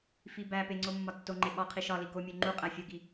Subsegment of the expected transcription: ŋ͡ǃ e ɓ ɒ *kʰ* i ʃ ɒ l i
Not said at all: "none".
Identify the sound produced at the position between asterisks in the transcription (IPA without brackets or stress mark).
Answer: qʰ